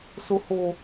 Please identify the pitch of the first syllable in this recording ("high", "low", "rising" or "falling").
high